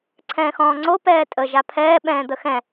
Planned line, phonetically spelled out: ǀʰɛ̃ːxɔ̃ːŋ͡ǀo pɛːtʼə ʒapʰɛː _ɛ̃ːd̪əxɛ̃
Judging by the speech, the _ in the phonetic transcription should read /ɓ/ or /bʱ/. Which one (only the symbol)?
ɓ